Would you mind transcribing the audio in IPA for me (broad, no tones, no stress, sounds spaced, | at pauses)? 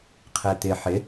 qʰ ɛ t̪ ɪ ħ ɪ